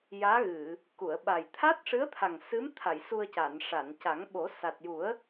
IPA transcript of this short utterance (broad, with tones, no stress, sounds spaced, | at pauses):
j aː˧˥ ɣ ɨ˨˩˨ | k u˨˩˨ ə̯ ɓ a˨˩ j t̪ʰ a˦˥ t̚ ʂ ɨ˧˥ ə̯ t̪ʰ a˨˩ ŋ s ɨ˧˥ m t̪ʰ a˨˩˨ j s u˧ ə̯ c a˨˩˨ n ʂ a˨˩˨ n c a˨˩˦ ŋ ɓ o˨˩˦ s a˨˩ t̚ j u˨˩˦ ə̯